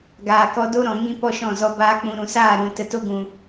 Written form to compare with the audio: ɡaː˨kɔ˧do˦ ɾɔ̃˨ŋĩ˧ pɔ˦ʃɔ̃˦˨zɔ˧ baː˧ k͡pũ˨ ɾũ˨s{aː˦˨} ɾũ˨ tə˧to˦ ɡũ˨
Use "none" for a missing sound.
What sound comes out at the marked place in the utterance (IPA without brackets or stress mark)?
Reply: aː˦˨